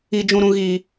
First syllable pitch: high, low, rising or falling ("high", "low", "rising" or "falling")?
low